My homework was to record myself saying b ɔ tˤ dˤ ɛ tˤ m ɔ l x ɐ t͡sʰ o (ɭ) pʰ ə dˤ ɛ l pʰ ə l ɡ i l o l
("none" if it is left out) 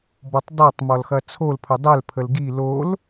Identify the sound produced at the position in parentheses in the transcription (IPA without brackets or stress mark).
l